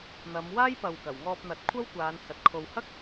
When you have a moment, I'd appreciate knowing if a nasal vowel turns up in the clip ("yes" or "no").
no